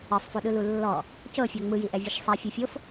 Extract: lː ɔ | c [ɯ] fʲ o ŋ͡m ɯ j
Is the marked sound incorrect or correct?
incorrect: ɤ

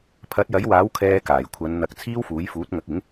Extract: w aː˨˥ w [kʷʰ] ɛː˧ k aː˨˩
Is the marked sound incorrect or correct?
incorrect: kʰ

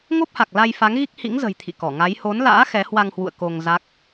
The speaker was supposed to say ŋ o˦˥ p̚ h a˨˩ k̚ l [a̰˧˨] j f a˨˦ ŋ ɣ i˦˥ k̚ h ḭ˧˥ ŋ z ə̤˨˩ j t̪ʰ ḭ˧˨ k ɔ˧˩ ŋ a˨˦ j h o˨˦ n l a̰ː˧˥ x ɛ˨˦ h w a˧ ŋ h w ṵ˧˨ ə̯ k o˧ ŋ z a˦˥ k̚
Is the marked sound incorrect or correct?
incorrect: a˧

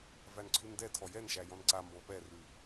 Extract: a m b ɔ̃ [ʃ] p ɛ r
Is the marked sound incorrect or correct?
incorrect: none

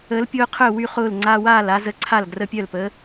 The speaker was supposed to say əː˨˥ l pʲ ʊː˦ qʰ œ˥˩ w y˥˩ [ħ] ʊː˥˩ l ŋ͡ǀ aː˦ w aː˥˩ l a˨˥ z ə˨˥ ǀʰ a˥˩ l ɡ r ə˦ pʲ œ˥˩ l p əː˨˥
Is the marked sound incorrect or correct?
incorrect: χ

